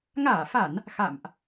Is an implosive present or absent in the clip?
absent